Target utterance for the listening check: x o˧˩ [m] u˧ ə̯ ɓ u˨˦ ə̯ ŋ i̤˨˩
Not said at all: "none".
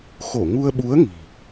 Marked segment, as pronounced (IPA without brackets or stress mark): ŋ